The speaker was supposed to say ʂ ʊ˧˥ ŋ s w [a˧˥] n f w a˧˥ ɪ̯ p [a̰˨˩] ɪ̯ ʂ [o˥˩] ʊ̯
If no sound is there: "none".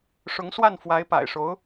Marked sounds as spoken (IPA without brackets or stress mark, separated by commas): a˥˩, a̰˨˩, o˧˥